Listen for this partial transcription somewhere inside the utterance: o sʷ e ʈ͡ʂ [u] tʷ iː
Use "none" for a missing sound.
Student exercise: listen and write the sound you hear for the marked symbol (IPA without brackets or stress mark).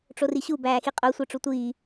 u